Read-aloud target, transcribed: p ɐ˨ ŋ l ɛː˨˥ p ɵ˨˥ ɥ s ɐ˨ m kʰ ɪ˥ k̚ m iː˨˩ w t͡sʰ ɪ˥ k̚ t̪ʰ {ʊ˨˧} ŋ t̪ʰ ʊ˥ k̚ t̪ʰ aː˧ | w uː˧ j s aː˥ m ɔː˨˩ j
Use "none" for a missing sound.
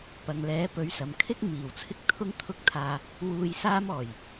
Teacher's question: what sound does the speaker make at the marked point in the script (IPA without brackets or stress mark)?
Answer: ʊ˥